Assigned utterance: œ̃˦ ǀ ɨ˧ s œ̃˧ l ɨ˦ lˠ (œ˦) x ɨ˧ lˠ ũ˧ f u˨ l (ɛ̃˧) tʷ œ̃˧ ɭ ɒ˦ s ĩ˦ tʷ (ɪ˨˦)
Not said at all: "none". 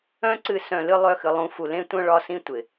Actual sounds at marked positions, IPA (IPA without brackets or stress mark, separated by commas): œ˦, ẽ˧, ɪ˨